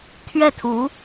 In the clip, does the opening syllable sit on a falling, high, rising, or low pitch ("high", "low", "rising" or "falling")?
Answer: falling